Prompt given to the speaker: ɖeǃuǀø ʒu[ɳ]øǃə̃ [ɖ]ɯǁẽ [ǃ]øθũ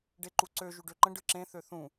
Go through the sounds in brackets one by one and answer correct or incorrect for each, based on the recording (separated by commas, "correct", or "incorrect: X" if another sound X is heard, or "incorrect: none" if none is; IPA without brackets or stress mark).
incorrect: ɖ, correct, incorrect: θ